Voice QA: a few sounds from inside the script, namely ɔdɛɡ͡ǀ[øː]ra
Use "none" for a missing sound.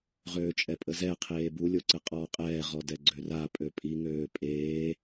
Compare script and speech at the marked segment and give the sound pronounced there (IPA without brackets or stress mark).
ø